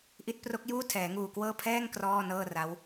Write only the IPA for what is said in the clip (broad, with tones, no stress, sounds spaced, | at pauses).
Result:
ʔ i˦˥ t̚ p r o˦˥ k̚ j uː˥˩ tʰ ɛː˩˦ ŋ uː˨˩ k w ɤː˥˩ pʰ ɛː˥˩ ŋ k r ɔː˥˩ n ɤː˥˩ r a˦˥ w